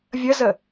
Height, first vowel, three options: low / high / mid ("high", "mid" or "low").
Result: mid